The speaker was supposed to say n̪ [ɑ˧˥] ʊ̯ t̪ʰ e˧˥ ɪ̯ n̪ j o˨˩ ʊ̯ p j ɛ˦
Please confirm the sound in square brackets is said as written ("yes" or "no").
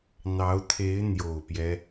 yes